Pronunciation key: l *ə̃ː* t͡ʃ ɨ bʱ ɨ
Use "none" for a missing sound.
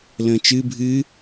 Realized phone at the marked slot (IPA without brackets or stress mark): ə̃ː